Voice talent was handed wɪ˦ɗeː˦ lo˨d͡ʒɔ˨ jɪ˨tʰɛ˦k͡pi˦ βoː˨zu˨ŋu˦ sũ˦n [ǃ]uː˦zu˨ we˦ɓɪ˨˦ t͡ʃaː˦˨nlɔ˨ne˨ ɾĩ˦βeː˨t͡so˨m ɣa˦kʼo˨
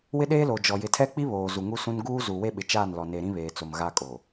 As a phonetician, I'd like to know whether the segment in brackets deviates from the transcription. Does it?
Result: yes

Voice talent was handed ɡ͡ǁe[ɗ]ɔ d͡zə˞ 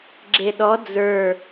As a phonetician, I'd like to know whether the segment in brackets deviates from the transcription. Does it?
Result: no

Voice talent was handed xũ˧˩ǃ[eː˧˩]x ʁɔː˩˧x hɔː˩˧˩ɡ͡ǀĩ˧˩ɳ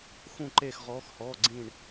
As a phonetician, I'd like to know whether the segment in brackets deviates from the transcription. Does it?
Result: no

